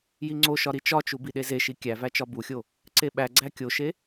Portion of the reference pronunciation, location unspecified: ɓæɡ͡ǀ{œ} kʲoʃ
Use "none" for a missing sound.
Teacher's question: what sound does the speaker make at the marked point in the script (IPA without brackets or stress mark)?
æ